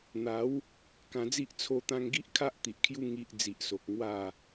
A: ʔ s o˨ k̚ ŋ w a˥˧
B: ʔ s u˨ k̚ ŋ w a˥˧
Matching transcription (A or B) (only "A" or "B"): A